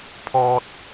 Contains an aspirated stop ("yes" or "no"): yes